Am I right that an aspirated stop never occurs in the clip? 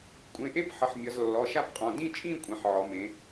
yes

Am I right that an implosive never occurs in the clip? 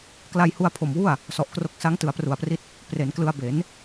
yes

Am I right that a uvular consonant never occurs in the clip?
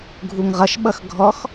no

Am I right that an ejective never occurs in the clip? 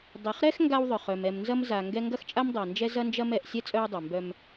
no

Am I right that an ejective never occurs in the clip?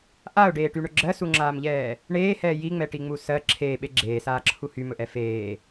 yes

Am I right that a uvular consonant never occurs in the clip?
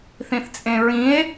yes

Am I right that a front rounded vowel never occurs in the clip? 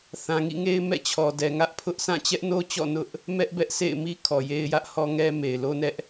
yes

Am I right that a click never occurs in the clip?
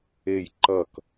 no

